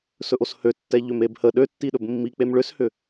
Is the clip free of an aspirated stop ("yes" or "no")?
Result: yes